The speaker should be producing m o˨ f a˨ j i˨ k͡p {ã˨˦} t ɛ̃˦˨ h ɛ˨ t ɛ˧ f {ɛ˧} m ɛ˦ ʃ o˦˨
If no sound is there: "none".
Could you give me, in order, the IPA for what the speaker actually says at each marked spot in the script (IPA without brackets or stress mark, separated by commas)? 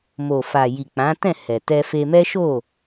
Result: ã˨˦, e˧